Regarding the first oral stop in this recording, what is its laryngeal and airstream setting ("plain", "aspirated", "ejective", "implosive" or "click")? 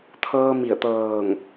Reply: aspirated